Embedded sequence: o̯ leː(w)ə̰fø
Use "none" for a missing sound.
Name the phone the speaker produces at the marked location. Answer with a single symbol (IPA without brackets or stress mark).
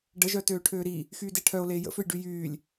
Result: j